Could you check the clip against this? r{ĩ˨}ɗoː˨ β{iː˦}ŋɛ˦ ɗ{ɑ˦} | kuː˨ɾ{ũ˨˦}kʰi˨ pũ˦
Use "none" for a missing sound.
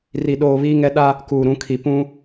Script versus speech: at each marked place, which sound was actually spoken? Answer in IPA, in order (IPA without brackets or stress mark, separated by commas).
i˨, iː˦, a˦, ũ˨˦